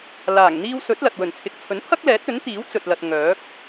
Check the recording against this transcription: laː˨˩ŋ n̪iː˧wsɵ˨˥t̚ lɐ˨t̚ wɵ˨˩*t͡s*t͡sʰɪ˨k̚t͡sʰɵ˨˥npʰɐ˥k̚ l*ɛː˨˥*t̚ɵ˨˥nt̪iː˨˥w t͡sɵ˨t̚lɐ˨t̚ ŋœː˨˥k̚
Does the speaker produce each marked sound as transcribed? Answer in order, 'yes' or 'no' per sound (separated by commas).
no, yes